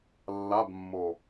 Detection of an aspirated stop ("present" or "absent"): absent